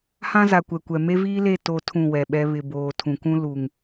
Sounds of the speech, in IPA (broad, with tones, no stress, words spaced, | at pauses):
hã˦za˨ kʷɛ˨kʷɛ˨ me˦viː˦le˦˨ to˦tʰũ˦˨wɛ˨ɓɛ˦ βɪ˨boː˨ tʰũ˨kũ˦ lu˨ŋ